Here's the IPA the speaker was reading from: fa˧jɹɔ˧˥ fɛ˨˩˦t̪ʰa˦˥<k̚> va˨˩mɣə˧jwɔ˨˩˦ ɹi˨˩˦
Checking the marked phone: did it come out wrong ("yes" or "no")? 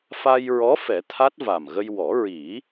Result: yes